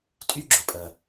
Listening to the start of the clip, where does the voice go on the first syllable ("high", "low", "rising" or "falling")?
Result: high